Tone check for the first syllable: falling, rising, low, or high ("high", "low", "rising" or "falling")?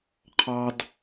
low